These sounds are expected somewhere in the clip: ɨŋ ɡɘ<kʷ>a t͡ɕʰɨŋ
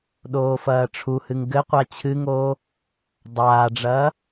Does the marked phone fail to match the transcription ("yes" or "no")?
yes